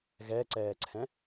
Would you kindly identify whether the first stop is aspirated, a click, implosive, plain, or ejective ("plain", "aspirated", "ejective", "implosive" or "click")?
click